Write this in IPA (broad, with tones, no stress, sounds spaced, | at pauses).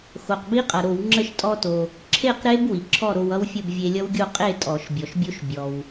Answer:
x o˩ q b i˦˥ qʼ ʌ˩ ɾ o˧˩˧ w ŋ͡ǁ ə˥˨ ʃ tʼ ɔ˧ t o˩ | ǁʰ e˥˨ q ɾ e˦˥ b w i˩ ǁʰ ɔ˥˨ ɾ o˧ w ʌ˦˥ w fʲ ə˥˨ b vʲ e˧ lʲ ʌ˦˥ w ɡʲ o˥˨ qʼ e˥˨ tʼ ɔ˧˩˧ ʃ bʲ ɔ˩ ʃ bʲ o˦˥ ʃ bʲ ɔ˩ w